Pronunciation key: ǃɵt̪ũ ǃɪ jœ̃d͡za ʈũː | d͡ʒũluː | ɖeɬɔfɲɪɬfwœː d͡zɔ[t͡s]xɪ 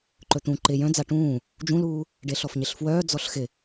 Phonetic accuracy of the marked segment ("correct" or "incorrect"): incorrect